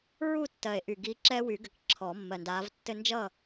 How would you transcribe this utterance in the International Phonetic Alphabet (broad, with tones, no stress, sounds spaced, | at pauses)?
ɹ u˥˨ tː ɜ˨˩ e̯ ʔ y˨˩ ɡ i˨˦ ǁ ɛ˦ w y˨˩˦ ɡ ɘ˨˩ k ǁʰ ɔ˨˩˦ mː ɜ˨˩ n d aː˨˦ v tː ɘ˦ n d͡ʒ ʌ˥˨